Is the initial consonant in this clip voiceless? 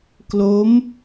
yes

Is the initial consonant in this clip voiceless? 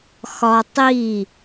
yes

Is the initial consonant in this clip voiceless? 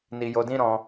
no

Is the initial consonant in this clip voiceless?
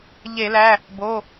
no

